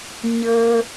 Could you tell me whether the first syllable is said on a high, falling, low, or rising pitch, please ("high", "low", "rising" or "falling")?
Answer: low